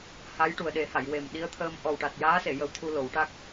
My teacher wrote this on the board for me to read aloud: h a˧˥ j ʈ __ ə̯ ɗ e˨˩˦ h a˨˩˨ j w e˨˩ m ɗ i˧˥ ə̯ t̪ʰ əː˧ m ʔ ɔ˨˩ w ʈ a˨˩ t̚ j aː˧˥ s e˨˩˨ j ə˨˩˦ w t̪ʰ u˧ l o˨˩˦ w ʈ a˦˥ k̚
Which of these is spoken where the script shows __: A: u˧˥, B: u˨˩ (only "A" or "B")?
B